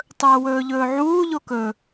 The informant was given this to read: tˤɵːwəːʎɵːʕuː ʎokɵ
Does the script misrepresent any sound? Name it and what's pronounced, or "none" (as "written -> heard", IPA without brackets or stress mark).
əː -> ɵː